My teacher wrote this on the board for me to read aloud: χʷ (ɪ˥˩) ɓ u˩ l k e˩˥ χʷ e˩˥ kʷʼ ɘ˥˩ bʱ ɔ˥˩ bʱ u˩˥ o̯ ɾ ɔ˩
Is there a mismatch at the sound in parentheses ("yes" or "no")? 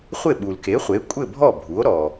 no